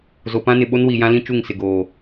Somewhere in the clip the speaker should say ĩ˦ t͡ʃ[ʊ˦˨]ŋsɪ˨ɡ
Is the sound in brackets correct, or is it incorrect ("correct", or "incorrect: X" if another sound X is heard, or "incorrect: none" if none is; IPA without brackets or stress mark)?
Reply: incorrect: u˦˨